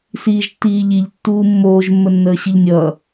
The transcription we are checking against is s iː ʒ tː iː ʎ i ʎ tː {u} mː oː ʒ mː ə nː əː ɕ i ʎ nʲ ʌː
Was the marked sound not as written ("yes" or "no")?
yes